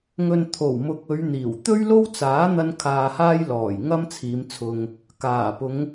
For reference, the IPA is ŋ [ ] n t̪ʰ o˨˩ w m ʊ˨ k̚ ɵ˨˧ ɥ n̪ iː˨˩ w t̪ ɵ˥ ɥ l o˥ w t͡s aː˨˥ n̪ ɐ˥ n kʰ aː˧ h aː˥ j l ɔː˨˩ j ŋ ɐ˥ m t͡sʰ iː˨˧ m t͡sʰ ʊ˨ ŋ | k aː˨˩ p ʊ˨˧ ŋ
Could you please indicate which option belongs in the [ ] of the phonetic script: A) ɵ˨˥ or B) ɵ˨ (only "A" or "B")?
B